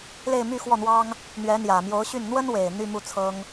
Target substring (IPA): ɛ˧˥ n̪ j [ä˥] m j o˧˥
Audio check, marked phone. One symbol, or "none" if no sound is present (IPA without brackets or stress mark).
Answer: ä˨˩